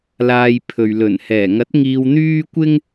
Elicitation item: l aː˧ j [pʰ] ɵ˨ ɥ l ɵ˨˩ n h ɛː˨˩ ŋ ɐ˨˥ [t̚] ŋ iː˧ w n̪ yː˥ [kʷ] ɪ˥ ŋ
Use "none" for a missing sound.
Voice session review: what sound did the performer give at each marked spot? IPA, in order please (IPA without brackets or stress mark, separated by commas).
pʰ, t̚, kʷ